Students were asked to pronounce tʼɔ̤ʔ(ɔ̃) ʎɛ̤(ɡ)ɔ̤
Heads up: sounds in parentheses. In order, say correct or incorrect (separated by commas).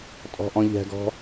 correct, correct